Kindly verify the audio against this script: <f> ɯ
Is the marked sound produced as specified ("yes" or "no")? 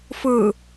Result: yes